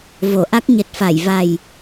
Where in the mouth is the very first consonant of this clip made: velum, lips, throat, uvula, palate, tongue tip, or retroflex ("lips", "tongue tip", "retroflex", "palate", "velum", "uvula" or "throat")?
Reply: lips